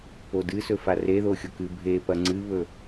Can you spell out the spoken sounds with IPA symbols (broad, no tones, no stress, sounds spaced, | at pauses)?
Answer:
p o d ɨ s ɵ f a r e ð o xʲ o k ɨ bʱ e p ɐ ŋ͡ǀ ɨ β ɵ